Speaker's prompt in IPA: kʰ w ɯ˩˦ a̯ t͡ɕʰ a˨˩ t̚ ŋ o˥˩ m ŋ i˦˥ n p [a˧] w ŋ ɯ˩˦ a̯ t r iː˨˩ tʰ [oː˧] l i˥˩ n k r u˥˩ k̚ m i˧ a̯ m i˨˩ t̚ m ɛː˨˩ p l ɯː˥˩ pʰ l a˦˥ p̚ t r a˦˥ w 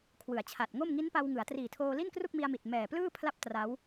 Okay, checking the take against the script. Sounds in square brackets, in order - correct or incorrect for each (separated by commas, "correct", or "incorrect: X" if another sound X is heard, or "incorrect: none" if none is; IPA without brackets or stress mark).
correct, correct